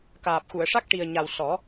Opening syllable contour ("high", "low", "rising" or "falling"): low